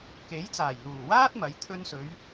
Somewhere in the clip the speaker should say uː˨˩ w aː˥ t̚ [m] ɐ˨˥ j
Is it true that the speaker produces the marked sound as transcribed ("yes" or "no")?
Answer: yes